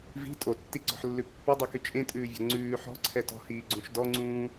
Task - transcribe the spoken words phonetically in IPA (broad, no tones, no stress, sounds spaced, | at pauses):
v i̤ tʼ o tː i ɡ͡ǀ ɔ̤ ħ lː ʉ pː ɵ dˤ y k y t͡ʃʼ ẽ tʼ ʉː vʲ ɔ̤ ŋ͡ǀ ʉː ħ ɔ̤ ǀʰ ɛ t ɔ̤ h iː ɡ͡ǀ ũ ʃ d ɔ ŋ͡ǀ ũː